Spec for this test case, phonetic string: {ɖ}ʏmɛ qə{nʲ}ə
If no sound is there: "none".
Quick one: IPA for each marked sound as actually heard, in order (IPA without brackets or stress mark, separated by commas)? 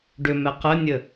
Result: ɖ, nʲ